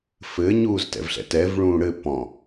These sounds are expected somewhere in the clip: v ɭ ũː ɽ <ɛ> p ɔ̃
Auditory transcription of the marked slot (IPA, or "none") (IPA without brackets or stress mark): ɘ